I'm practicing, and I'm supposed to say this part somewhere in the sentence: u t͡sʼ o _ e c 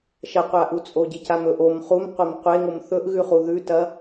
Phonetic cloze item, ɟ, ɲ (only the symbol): ɟ